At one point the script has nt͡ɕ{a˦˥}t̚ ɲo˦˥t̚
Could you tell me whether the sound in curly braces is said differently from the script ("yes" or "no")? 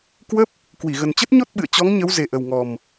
yes